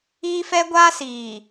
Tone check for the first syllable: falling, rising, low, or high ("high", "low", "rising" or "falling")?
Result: high